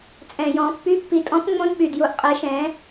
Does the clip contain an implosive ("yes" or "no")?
yes